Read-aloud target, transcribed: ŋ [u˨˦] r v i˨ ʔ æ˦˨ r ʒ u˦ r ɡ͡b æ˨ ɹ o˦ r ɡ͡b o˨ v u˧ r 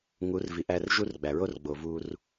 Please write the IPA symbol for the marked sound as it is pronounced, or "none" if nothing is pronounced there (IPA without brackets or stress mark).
u˨˦